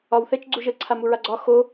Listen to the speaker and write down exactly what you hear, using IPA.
ɒwθɛt͡ʃ ɡ͡ǀuʒə ǀʰamuɹaɡ͡ǀɒ xo

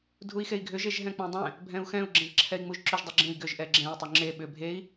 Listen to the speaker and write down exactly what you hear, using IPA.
dʱui̯xei̯ɡʱʏ ʒeʒɦɛ̃k͡pẽdˤɛ̃ | bʱɛ̃u̯xɛ̃u̯ ɡ͡ǁɛ̃ʒǁʰɛi̯ŋ͡muʒǁʏʒ dˤuɡ͡ǁẽi̯ ɡʏʒ ʔɛɡ͡ǁɛ̃i̯ tˤʏŋ͡ǁe ɓʏ bʱei̯

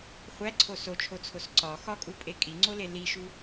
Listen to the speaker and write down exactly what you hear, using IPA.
χʷæǀʰo sot͡ʃʰot͡sʰos ǀɒ xɒkʼupʼe kʼiŋ͡ǀole liʃu

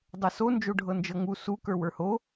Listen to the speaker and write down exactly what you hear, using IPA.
dˤɤso nd͡ʒoɖʱɤnd͡ʒɤŋu su kə˞wə˞ho

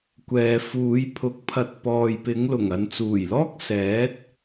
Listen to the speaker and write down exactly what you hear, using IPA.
kʷɛː˨fuː˨˧j pʰʊ˨k̚pʰɐ˨˥t̚ pɔː˨jpɪ˨˧ŋlʊ˨˩ŋ ɐ˨nt͡suː˨˩jlɔː˥k̚ sɛː˨˥t̚

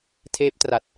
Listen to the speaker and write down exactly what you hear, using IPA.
tʰeː˦˥p̚tra˨˩t̚

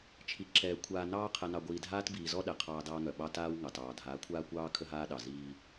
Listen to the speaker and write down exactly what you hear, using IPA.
t͡ʃʰi˨ǁɛː˨ kʷʰaː˨nɑː˦ qʰɛ˨nɑ˨ɡʷiː˨dʱaː˦t biː˨zɔ˦ ɗɛ˨qʰɑː˦dɑː˦ŋœ˨ ɓɑ˦taː˦w ŋɑ˨tɑː˨ dʱaː˨˦kʷʰaː˦kʷɑː˦ kʰə˦ɦaː˦ɗɑ˨ ziː˦

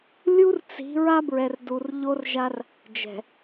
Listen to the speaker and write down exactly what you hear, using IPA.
lʲu˦rt͡si̤˨˦ ɹa˦bɹɛ˨rdu˨r ʎo˦rʒa˦r | d͡ʒɛ̤˨

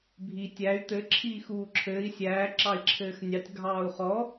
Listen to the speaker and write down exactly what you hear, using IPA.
bʱi tʲæy̯ t̪ɘ ǁʰiːxuːǁʰɘːi̯ sʲæː ǁɑi̯ǁʰɘːxnʲɑtʲ ɡʱɑːu̯χɔ

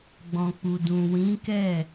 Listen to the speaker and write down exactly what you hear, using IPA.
ɡ͡bɔ̃˨k͡pu˨dũ˨ wĩ˨˦kɛ˦˨

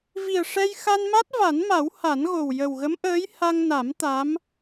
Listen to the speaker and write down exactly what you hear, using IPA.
vi˨˩ə̯ʂɛ˧j xa˧nma˦˥t̚ va˨˩˦nma˨˩˦w ha˨˩˦nɣo˨˩w jə˨˩wɣə˧˥mʔəː˧˥j ha˧ŋna˨˩˦m t̪a˧˥m

